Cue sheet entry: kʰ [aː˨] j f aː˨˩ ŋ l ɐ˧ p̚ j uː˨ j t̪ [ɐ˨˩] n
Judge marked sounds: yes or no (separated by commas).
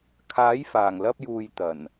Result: no, yes